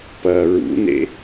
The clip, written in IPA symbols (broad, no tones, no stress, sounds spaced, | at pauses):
p ɐː ɹ ṵ n ḛ